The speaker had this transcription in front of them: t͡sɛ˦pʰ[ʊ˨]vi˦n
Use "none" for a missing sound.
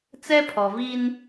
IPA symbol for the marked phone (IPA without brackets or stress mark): ɔ˨